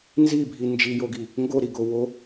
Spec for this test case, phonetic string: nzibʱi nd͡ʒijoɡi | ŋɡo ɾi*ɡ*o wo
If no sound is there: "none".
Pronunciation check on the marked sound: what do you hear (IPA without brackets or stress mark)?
ɡ